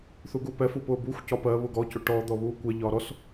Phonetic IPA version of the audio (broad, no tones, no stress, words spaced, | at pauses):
θuɡupɛfu pʊːbuxʷcɒ pɜ βʊɡɔcʊ ʈɔd̪ɔ βuːkʷɛʎɒː ɾɔs